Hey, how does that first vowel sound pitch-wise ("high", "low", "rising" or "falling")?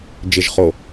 low